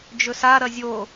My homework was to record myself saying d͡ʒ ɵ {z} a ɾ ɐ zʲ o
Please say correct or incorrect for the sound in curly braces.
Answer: incorrect